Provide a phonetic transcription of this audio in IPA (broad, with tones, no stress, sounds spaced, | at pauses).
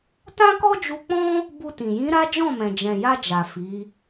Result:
t ã˦ k ɔ˦ d͡ʒ u˧ k͡p ɔ̃˦ | b u˧ t ĩ˨ j ĩ˨˦ ɾ a˦ d͡ʒ ɔ̃˦˨ m ɛ̃˨ d͡ʒ ɛ̃˨ j a˧ d͡ʒ a˨ f i˨˦